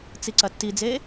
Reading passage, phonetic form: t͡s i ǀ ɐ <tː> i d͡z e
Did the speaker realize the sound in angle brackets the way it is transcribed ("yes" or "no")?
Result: yes